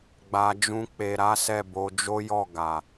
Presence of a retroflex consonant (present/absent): absent